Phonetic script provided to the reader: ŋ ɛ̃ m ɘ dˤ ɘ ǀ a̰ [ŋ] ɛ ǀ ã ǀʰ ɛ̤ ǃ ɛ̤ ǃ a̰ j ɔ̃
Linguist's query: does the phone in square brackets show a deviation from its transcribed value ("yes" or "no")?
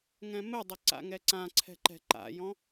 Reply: no